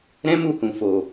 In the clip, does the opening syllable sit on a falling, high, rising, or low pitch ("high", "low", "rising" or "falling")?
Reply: high